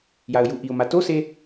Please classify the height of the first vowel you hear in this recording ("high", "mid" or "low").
low